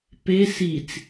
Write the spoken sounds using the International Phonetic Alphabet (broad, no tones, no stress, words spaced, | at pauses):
pe sit͡s